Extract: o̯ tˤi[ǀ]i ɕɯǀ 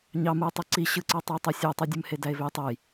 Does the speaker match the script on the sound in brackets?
yes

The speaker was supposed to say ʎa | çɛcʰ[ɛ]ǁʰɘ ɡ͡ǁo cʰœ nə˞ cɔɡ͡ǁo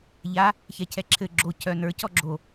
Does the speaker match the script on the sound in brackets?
yes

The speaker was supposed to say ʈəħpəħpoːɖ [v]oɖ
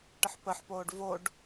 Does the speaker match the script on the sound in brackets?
yes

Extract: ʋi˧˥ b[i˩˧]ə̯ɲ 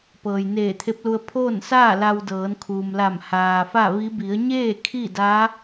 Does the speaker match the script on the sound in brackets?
yes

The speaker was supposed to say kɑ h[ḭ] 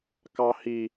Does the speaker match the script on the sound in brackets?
no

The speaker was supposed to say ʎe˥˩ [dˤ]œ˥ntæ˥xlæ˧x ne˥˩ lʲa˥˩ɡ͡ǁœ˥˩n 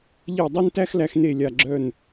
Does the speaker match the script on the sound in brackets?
yes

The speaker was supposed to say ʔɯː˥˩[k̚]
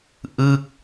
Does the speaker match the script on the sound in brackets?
yes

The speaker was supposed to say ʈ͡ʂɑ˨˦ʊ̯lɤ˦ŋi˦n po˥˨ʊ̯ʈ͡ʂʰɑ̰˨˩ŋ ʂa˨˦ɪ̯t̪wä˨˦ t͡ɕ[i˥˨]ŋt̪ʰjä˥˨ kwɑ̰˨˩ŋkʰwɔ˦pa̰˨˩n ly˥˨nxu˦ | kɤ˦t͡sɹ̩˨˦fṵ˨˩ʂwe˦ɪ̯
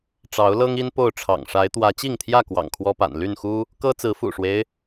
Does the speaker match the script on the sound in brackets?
yes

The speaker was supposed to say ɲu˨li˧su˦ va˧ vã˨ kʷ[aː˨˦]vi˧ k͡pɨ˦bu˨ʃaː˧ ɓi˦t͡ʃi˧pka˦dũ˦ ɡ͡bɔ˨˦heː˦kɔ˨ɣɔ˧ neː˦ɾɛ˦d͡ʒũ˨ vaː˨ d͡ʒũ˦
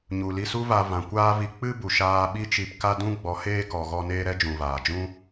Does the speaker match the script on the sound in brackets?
no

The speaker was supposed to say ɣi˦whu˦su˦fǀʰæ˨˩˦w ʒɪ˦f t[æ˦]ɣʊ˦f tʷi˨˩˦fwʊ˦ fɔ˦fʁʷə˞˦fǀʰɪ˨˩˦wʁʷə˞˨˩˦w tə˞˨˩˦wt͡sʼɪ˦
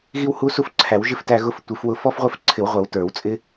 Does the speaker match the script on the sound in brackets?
yes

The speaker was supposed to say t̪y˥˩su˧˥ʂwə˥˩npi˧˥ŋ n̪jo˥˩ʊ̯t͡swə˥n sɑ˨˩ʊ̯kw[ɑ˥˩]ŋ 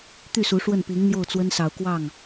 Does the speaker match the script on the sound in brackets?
yes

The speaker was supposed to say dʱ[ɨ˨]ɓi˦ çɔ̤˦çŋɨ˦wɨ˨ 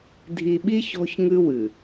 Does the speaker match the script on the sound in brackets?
no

